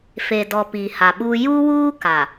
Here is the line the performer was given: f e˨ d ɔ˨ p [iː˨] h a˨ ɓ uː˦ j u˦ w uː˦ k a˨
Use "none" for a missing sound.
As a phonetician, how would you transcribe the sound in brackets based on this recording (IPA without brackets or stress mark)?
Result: iː˨